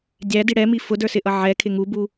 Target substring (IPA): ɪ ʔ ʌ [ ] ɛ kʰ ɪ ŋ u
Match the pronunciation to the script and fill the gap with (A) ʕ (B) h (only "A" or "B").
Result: A